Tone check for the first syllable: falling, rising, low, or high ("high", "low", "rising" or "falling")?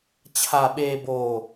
low